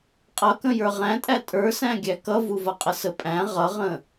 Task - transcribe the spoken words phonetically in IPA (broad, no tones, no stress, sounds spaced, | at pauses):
qʼ ʌ k ə̃ j ə˞ ʁ æ̃ tʼ æ tʼ ə˞ s æ̃ ɡʲ æ k ʌ v u v ʌ qʼ ə s ə pʼ æ̃ ʁ ʌ ʁ ə̃